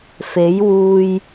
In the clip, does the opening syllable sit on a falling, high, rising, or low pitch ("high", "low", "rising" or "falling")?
rising